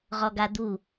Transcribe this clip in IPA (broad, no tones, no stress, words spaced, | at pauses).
ʁɔɡad̪u